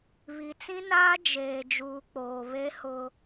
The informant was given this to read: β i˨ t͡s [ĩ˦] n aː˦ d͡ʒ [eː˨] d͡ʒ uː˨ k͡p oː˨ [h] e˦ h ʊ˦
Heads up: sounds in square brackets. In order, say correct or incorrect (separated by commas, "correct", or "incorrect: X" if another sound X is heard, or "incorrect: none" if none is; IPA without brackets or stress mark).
correct, correct, incorrect: β